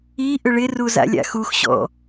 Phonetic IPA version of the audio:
i ʔ ʏ ɭ ɪ r u z a̰ lʲ a̰ x u x ɕ ɔ̰

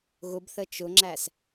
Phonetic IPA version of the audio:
ɣ ʊ b θ ə t͡ʃ ʊ ŋ͡ǁ æ s

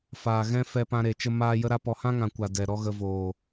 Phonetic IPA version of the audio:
f aː˨ ɣ ɛ̃˦ f ɛ˧ p ã˧ ɾ e˨ t͡ʃ ə˦ m aː˦ j ə˦ ɾ a˦ p ɔ˧ h ã˦ ŋ ã˨ kʷ a˨ d ɛ˨ ɾ ɔ˦ ɣ ə˧ v oː˨

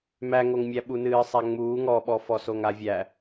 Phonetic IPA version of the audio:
m æ ŋ o ŋ mʲ æ ɓ u n ɨː sˤ æ ŋ͡m uː ŋ ɔ ɓ ɔ f ɔ s o ŋ a vʲ æ

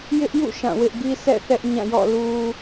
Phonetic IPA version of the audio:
j ɪ˦ ʔ j ṵ˦˨ ʃ ã˦˨ w ɪ˦ ʔ ɡ i˦ s ɛ̰˦˨ θ ɛ˦ ʔ ɲ ã˦˨ j ɔ̰˦˨ l u˦

